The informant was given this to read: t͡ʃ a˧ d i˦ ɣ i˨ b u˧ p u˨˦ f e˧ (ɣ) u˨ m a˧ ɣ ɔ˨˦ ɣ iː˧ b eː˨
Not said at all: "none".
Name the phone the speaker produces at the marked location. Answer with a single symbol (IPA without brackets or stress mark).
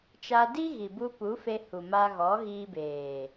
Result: h